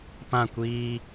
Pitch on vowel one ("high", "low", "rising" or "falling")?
falling